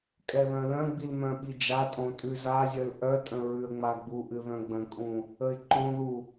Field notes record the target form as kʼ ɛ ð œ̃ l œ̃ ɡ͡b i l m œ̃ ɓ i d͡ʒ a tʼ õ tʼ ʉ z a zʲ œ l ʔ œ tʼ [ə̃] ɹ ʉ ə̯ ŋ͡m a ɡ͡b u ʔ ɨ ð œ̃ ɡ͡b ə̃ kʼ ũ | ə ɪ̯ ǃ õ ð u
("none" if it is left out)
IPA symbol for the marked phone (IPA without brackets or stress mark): ə̃